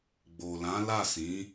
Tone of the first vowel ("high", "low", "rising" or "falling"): low